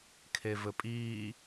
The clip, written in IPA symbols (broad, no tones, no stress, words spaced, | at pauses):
kʰevɘpʼiː